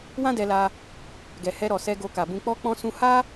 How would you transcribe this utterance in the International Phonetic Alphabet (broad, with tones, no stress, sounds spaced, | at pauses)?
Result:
w ã˦ d ɛ˧ l a˧ | ɡ ɛ˨ h ɛ˧ ɾ ɔ˨ s ɛ˧ ɡ o˧ k a˨ b ũ˧ k͡p ɔ˧ k͡p ɔ̃˧ s ũ˧ h a˦